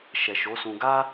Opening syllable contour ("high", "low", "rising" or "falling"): low